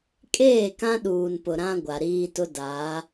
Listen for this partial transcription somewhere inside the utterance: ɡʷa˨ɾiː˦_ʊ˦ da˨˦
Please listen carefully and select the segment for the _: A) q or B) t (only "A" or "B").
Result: B